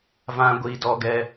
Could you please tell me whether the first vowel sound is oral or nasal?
nasal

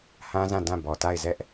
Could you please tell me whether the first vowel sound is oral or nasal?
nasal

